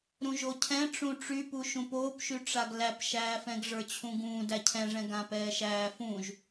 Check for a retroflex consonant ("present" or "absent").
present